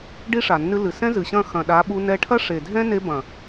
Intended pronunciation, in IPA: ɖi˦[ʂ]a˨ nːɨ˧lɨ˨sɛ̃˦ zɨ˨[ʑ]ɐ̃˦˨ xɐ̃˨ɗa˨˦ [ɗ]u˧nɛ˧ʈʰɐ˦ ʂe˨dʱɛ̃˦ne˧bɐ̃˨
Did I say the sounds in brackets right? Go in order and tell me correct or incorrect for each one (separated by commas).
correct, incorrect, incorrect